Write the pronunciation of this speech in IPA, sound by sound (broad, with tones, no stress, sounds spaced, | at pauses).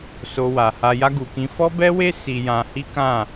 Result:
s o˧ w a˨ h a˧ j a˦ ɡ u˧ k ĩ˦ f ɔ˦ b ɛ˦ w e˦ s i˧ j ã˧ h i˦ k ã˦˨